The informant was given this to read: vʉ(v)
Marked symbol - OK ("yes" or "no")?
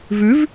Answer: yes